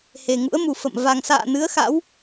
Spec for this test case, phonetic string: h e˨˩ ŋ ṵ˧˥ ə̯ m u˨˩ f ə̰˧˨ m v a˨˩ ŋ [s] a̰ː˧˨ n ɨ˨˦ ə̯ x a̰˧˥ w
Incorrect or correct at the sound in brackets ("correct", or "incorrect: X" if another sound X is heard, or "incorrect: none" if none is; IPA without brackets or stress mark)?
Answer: correct